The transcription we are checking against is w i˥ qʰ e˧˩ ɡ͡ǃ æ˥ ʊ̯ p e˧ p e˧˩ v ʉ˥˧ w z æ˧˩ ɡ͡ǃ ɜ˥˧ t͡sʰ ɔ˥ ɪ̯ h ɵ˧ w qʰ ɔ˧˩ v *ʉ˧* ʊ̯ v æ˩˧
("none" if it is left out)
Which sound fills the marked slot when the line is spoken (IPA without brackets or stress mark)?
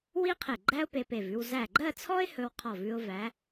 ʉ˧